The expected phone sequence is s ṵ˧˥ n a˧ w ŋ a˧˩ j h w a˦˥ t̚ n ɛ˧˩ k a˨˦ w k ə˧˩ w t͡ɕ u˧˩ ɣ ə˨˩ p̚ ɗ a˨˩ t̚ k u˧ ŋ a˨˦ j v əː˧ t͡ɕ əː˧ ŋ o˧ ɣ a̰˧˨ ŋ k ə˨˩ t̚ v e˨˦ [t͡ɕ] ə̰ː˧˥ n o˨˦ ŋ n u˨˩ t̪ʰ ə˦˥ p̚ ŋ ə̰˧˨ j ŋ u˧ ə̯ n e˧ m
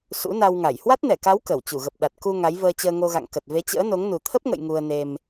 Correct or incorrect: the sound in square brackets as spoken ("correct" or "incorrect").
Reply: correct